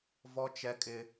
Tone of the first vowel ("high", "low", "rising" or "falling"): high